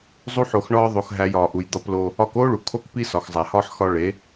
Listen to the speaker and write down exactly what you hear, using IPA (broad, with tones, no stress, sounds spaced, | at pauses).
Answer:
zˤ u˦ ħ o˧ x ɳ ɒː˦ ðˤ o˧ x ɦ æ˧ j ɒː˨ ʔ u˨ j d̪ ɒ˧ p l o˧ | ɒ˧ k oː˦ ɭ u˨ kʰ o˦ k p i˦ s ɒ˨ x zˤ æ˨ h ɒː˦ ħ x ɒ˧ ɭ e˨˦